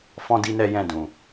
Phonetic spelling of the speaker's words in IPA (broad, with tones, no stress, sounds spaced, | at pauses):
f ɔ̃˦ d i˦ n ɛ˦ j ɛ̃˦˨ d ũ˨